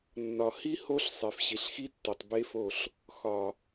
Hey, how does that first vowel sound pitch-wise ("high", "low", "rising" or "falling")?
low